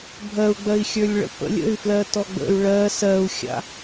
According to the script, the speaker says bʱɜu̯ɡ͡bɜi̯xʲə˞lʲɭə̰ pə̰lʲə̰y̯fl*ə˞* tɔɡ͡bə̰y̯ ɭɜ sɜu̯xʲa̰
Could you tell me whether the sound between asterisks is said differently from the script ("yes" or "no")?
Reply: yes